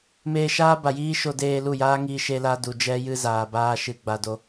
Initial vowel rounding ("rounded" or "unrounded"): unrounded